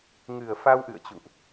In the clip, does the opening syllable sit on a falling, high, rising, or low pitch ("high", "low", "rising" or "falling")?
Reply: low